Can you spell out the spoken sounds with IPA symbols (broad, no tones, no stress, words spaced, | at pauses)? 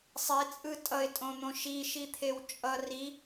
sˤet͡sʼɯ tʼʌɪ̯tʼõn̪õ ʃiʃit̪ʰew t͡ʃʼʌ ri